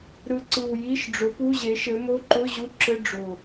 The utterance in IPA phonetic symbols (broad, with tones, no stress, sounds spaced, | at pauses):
ɾ ɯ˨˩ ǀ ɯ˨˩ w j i˧˥˧ ʃ ɖ͡ʐ ʊ˨˥ p u˧˥˧ ʑ e˨˥ ʃ ɘ˨˥ m o˧˥˧ ǃ ʊ˧˥˧ ʑ u˧˥˧ ǁ ɘ˧˥˧ ɖ͡ʐ ʊ˨˩